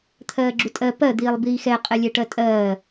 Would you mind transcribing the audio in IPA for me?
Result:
t̪ʰɜːɡ͡ǁutʼɜ pɜ d̪iːlˠbiːxɛ qʼɛlʲɛʈɜtʼɜː

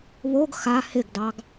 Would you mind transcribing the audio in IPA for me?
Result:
βoɡ xa hɪɡdɑɡ

